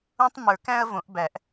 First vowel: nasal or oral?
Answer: nasal